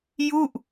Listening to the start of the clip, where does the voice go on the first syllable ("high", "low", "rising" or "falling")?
falling